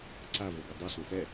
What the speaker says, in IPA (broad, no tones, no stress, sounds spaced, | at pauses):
ǀ a v o ɡ e dˤ ɛ ɬ ɔ̃ s ɛ